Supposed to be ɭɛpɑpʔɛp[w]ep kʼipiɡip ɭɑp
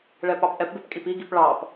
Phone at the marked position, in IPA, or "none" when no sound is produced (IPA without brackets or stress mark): b